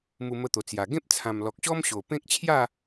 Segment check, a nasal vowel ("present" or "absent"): present